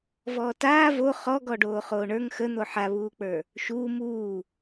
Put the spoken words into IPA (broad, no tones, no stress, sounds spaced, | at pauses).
v ɔː t aː v o χ ɔ ɡ ɔ ɖ oː χ oː ɳ ə˞ ŋ x ə n̪ o ħ a β uː k͡p ə˞ | ʃ uː m uː